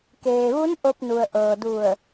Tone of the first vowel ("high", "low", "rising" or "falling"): low